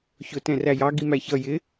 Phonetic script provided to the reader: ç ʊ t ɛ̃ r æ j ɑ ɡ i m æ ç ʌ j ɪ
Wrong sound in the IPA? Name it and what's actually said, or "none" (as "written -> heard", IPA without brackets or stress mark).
none